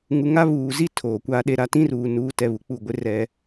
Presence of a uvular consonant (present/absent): absent